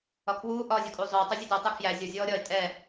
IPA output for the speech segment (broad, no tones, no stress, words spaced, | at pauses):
ɒkʰwuː ʔɒːzʲɒkʼuːzˤɵː tˤuzʲɛdo tˤɛkʰjæ zʲɒ zʲɔːɾʲɒɪ̯ tʼɛ